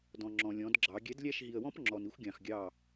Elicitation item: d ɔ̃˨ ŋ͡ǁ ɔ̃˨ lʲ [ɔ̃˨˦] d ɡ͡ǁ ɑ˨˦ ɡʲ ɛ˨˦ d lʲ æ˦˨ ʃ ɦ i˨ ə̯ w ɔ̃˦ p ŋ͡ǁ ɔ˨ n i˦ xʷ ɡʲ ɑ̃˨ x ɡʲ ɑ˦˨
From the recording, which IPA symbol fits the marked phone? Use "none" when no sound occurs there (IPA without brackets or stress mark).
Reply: ɔ̃˨˦